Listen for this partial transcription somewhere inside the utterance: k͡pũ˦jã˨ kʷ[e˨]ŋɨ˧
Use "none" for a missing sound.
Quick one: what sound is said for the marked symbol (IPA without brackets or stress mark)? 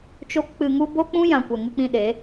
ɛ˨